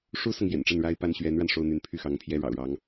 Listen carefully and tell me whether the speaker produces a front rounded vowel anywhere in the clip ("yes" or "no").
yes